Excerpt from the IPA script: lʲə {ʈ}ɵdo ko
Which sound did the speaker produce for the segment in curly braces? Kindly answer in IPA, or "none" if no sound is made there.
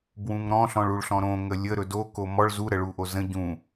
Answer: ɾ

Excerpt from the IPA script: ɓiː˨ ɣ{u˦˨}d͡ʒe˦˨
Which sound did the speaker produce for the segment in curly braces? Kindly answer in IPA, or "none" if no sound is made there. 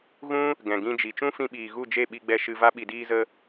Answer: u˦˨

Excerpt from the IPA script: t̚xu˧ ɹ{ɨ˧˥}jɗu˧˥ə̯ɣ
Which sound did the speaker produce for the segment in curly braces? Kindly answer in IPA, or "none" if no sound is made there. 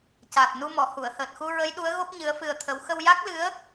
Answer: ə˧˥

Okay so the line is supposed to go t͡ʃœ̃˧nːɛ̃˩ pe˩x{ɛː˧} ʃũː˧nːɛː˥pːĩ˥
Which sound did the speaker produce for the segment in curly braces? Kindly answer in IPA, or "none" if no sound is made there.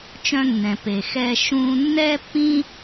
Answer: ɛː˧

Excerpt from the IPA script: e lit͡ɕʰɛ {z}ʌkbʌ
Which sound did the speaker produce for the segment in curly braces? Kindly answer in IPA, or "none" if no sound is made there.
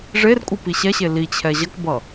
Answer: ʑ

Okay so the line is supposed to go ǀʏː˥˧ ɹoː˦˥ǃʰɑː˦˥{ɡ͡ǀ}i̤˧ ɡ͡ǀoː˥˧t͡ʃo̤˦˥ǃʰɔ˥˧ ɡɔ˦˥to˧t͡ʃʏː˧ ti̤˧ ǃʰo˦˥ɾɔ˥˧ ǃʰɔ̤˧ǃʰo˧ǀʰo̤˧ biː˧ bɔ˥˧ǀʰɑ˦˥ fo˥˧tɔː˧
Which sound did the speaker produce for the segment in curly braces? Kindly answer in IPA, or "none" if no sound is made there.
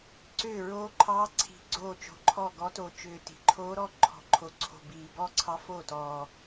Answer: ǀʰ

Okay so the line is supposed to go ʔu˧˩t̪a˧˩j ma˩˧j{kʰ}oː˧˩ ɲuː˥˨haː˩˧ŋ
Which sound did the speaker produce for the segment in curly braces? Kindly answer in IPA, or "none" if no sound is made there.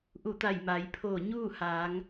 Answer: pʰ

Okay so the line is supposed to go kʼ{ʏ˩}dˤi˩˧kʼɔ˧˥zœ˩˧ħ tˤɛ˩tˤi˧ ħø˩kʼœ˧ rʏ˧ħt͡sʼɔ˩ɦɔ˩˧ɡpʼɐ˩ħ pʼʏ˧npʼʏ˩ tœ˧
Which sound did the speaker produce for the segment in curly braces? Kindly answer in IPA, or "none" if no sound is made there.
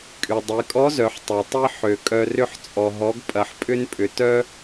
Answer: y˩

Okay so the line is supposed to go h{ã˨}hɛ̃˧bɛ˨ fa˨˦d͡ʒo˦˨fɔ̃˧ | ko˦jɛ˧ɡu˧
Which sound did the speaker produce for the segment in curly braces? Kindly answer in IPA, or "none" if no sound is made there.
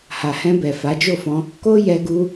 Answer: a˨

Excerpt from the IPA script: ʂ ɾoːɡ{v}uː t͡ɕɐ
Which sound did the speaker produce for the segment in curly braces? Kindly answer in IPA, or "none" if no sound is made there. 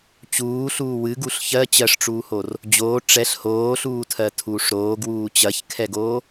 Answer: w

